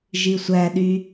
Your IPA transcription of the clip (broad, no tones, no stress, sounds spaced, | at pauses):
ʒ i sʷ æ ɗ y